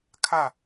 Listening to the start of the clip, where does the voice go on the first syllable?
falling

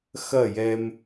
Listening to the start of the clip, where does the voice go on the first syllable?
falling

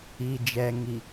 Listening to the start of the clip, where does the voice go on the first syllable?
low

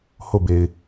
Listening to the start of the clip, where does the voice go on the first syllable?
falling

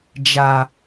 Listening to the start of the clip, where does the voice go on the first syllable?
low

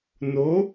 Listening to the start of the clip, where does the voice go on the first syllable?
rising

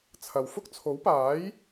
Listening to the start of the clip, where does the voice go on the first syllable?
low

